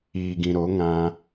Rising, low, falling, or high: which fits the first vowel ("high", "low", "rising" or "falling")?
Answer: low